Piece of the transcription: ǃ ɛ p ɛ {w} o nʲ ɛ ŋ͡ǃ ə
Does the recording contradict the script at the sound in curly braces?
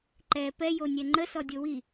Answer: yes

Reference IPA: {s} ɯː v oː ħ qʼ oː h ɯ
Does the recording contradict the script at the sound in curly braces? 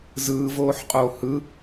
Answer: yes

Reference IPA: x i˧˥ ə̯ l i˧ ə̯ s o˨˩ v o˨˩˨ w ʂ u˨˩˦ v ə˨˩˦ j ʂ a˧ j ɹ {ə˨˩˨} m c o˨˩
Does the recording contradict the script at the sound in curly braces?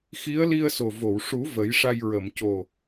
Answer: no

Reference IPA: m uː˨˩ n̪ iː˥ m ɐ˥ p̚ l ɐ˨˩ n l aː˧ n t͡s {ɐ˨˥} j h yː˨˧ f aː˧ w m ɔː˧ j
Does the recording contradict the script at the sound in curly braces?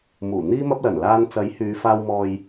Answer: no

